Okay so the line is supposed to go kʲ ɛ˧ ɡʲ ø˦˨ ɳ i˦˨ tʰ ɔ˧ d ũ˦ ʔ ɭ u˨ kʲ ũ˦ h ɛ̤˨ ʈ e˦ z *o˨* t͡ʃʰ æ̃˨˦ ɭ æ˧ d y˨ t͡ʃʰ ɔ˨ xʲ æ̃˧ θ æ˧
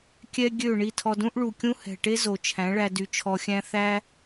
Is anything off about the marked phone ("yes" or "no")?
no